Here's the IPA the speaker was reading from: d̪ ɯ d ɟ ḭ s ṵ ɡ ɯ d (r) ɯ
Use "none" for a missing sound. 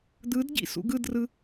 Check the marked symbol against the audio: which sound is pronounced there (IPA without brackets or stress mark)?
r